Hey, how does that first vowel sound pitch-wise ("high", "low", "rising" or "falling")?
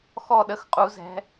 falling